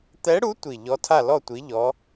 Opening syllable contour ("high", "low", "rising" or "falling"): rising